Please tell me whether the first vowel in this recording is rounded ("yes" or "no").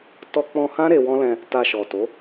yes